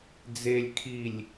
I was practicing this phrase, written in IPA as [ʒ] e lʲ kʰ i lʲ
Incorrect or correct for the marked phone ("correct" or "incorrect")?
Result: incorrect